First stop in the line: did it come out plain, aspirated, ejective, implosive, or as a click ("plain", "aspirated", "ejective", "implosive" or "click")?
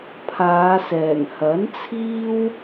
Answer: aspirated